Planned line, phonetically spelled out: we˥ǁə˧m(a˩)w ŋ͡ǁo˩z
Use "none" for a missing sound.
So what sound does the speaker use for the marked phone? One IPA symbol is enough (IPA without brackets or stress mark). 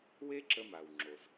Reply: a˩